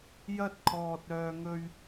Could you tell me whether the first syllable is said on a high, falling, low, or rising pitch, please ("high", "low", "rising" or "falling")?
high